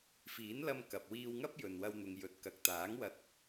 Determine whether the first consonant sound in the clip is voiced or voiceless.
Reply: voiceless